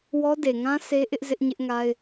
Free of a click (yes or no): yes